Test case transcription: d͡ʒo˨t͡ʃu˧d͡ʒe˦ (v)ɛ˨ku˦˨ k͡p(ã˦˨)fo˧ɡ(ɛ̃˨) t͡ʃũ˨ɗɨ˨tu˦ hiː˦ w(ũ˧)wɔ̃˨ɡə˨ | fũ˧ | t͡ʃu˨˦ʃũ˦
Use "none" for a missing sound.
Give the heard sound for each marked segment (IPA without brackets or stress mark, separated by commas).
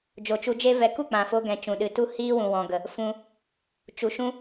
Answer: v, ã˨, ɛ̃˨, ũ˨